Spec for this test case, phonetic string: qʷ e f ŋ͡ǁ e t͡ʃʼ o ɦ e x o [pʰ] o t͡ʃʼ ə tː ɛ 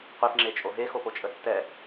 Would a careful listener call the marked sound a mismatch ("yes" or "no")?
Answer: yes